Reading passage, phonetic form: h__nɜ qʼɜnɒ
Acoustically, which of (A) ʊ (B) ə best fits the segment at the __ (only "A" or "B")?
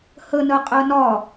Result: B